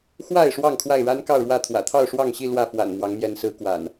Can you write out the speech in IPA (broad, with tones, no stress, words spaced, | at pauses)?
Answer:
xwa˥˨ɪ̯ ʂwɑ˥˨ŋkʰwa˥˨ɪ̯ ɻa˦n kɑ˥˨ʊ̯ɻwä˥˨t̪ʰwä̰˨˩ t̪ʰɑ˥˨ʊ̯ʂwɑ˥˨ŋɕi˥˨ lwä˥˨ fwa̰˨˩n mwɑ˨˦ŋmjɛ˨˦nsɹ̩˨˦ kwa̰˨˩n